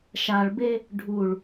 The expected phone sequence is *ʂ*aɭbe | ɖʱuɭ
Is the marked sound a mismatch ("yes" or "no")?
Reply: yes